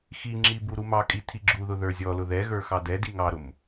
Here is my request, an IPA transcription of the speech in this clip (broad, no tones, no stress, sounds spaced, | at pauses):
x i ŋ͡ǁ i b u ɾ u m ɑ kʼ i tʰ i ɡ͡ǁ u ð ʊ ð ə˞ zʲ ɔ l ʊ ð ɛ ɣ ə˞ x ɑ d ɛ d i ŋ ɑ ɾ ʊ m